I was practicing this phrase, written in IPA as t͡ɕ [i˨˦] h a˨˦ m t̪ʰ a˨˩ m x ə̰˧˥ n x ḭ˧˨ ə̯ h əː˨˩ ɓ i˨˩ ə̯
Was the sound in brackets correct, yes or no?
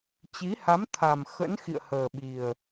yes